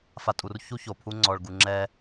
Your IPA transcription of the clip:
f a˧ tʼ u˧ r ç u˦ ç o˨ pʰ u˦ ŋ͡ǀ ɔ˨ ɭ ɡ u˨ ŋ͡ǁ ɛ˧

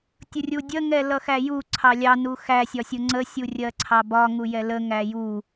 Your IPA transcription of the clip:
tʲ ʊ rʲ u dʲ ə ŋ ɛ l ʌ x æ j u ǀʰ ɑ lʲ ɑ n u x æ sʲ ɒ sʲ ʊ ŋ͡ǀ ə sʲ u rʲ ɜ ǀʰ ɑ b ɒ ŋ u j ɛ l ə ŋ æ j u

